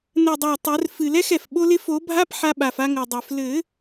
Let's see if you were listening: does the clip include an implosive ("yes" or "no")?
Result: yes